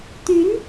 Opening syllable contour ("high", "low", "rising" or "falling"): rising